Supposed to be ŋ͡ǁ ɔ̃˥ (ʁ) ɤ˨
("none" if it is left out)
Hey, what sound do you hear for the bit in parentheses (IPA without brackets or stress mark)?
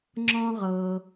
ʁ